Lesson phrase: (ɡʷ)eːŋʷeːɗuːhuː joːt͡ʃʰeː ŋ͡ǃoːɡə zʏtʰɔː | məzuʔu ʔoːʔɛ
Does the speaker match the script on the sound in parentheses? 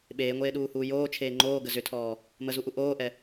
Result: no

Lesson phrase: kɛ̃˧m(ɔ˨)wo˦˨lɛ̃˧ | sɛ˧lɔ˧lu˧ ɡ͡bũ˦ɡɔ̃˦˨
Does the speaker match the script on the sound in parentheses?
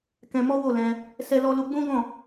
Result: no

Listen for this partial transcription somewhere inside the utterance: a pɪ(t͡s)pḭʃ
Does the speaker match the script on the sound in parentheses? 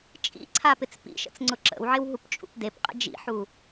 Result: yes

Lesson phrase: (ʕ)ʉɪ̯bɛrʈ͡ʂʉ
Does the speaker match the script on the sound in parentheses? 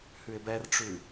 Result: no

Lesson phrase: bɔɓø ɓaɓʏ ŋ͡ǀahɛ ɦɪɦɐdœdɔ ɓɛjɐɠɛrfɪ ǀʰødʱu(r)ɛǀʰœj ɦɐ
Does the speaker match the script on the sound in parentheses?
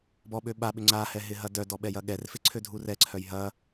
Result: yes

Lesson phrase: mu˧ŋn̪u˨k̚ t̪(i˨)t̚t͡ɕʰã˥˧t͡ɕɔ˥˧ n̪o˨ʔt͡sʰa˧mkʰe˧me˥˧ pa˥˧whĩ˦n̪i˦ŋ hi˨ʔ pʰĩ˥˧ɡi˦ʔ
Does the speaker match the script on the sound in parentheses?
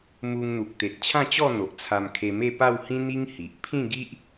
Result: no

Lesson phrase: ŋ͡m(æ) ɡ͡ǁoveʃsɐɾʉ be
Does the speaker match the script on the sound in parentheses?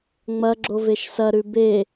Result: no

